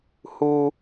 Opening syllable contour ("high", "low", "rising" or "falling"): low